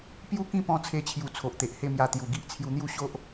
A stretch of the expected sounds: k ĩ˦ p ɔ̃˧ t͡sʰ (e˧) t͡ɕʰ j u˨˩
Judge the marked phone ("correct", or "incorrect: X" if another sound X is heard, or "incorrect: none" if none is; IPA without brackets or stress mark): correct